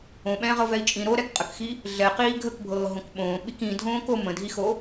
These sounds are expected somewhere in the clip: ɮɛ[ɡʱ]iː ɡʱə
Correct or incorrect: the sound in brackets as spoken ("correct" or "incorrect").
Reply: incorrect